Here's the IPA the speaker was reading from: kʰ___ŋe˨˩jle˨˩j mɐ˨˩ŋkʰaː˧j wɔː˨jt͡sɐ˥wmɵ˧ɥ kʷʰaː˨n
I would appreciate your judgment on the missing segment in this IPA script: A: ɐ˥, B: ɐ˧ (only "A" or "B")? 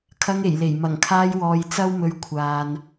B